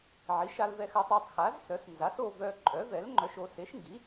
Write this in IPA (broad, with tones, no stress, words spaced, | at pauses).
ʕi˩˥ʃa˧lvɛ˧xa˧tˤ œ˧tˤxa˩˥z sœ˩˥snza˩˥so˧ vœ˧ ǃʼœ˩˥vɛ˩˥lŋ͡ǃœ˧ʃo˧ se˩˥ʃŋɡi˩˥